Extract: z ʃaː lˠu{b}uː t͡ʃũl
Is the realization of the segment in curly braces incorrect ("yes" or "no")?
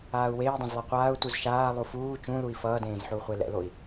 yes